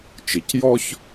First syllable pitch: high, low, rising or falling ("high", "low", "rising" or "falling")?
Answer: low